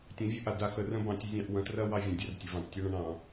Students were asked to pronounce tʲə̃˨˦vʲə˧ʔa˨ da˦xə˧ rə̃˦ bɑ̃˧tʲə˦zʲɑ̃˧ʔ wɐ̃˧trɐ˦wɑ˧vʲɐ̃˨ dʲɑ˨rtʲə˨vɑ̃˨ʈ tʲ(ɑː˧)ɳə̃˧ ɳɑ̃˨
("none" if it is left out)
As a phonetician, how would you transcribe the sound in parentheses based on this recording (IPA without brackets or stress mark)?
ɑ˧